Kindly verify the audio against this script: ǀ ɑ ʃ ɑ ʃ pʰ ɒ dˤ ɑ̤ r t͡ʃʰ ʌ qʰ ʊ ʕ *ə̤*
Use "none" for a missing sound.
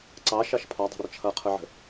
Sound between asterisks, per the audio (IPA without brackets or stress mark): ə̤